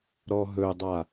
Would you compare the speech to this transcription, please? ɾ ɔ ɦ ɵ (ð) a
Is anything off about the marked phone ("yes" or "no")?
yes